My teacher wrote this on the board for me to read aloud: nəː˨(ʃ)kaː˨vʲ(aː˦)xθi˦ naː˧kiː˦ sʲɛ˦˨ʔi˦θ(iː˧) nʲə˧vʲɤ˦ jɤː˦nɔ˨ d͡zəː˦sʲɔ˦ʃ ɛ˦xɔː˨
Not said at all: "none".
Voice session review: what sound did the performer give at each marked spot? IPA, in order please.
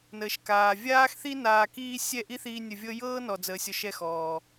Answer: ʃ, aː˦, iː˧

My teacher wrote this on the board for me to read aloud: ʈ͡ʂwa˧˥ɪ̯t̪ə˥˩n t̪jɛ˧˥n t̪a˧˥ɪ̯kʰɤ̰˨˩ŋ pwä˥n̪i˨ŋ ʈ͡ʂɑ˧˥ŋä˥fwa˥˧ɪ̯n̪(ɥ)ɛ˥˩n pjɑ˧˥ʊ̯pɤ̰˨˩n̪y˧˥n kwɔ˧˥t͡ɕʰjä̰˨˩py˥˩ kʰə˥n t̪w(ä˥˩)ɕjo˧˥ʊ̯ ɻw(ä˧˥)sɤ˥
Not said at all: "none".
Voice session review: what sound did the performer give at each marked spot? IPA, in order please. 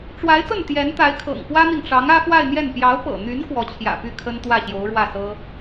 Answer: j, ä˥˩, ä˥˩

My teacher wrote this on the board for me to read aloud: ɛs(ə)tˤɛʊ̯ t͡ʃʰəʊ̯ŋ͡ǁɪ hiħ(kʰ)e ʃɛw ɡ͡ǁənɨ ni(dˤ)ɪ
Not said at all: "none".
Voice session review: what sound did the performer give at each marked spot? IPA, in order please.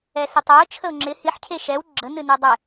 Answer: ɪ, cʰ, dˤ

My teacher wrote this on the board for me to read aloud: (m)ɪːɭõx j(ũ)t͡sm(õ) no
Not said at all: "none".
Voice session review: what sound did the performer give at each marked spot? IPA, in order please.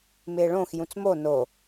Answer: m, ũ, o

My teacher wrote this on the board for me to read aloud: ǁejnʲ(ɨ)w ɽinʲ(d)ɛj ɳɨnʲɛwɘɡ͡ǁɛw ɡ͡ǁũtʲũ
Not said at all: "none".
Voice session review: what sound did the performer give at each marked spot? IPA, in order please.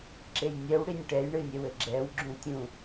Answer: ɛ, ʈ

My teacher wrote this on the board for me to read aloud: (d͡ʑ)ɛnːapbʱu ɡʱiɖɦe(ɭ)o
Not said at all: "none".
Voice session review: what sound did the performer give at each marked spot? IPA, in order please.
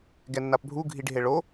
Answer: ɡ, ɭ

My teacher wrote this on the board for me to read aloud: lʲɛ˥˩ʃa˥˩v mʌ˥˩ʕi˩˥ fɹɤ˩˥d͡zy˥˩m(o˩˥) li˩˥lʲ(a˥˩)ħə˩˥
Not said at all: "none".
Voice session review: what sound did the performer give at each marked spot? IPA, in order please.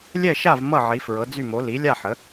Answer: o˩˥, a˥˩

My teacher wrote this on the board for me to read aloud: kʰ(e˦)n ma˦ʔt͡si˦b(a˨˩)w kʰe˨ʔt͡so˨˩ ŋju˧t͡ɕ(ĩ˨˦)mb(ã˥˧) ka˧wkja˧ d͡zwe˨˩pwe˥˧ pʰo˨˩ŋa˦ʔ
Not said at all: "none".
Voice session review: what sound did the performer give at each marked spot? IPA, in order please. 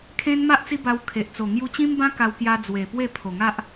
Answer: ẽ˦, a˧, ĩ˦, ã˦

